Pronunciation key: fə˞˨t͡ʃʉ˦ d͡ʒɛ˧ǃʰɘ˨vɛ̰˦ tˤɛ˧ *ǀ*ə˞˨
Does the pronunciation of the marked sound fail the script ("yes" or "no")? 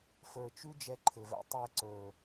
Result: no